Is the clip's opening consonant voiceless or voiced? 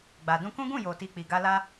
voiced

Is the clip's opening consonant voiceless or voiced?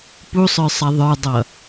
voiceless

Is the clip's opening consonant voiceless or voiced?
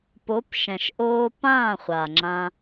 voiceless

